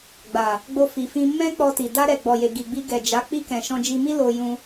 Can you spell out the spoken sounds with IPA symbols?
ɡ͡b a˨ | ɡ͡b o˧ f i˨ f ĩ˧ m ɛ̃˦ k͡p ɔ˧ t i˨ d a˧ ɾ ɛ˨ ɡ͡b ɔ˨ j e˨ ɡ i˨ ɡ͡b i˧ ɡ ɛ˨ d͡ʒ a˨˦ k͡p i˧ k ɛ̃˨ ʃ ɔ̃˧ d͡ʒ i˧ m i˦ l o˧ j ũ˧

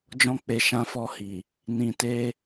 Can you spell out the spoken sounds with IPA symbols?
d͡ʒ ɔ̃˧ k͡p e˨ ʃ ã˧ f ɔ˧ h i˨ | n ĩ˧ t e˦

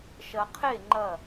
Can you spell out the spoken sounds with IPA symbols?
ʃ ɐ˧ qʰ e˥˧ ŋ͡ǃ ɐ˥˧

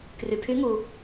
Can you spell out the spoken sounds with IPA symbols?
k r y˩ pʰ y˧˥ ŋ u˩

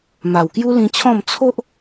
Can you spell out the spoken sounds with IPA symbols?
m a˨˩ w k j u˦ l ĩ˧ t͡ɕʰ ɔ̃˥˧ m t͡sʰ o˦ ʔ

